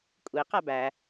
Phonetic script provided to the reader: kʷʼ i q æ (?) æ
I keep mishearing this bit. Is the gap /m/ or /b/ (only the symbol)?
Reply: b